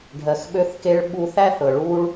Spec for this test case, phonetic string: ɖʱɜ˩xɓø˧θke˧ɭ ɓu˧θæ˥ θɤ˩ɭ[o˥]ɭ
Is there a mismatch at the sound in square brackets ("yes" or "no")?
yes